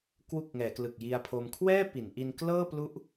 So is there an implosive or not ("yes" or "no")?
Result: no